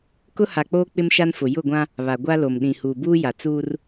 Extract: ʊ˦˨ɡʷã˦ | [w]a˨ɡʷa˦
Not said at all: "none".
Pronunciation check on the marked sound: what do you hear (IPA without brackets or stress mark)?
β